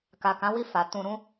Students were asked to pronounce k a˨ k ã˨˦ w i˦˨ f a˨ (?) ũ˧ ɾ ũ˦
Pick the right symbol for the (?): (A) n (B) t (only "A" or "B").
B